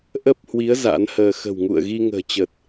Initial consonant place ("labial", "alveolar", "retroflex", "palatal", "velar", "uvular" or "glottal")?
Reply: glottal